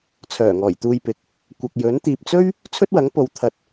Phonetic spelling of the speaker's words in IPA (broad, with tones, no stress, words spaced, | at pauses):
t͡sʰœː˨˩ŋɔː˨˩jt̪uː˧jpɪ˨k̚ | kʷɐ˨k̚jɵ˨˥n t̪iː˨p̚t͡sɵ˥ɥ | t͡sʰɵ˥t̚wɐ˨˥ŋpo˨˧w t̪ʰɐ˨˥t̚